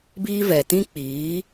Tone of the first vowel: high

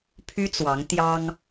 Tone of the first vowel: high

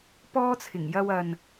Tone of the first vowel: high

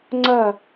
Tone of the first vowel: falling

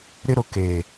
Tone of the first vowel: high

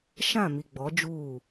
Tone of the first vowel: falling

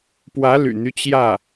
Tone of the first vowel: rising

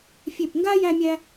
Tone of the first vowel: falling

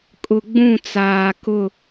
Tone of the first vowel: low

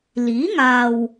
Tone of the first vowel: rising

